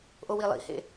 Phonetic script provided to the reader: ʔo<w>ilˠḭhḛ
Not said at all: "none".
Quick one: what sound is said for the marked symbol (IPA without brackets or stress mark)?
w